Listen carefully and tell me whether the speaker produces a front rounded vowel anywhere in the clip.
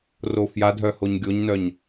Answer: yes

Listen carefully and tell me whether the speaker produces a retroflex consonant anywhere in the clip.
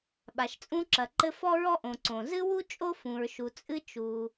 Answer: no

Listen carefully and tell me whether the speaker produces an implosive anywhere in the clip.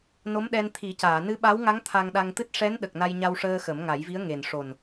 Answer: yes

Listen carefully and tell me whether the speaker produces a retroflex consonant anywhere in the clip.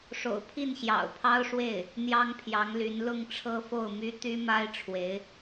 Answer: yes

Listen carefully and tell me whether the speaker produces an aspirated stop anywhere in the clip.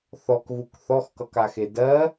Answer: no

